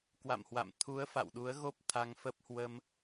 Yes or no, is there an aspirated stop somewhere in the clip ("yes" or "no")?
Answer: yes